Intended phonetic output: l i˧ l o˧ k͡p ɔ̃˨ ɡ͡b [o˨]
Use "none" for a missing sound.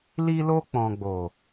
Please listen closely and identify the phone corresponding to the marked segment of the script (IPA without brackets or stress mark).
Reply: o˨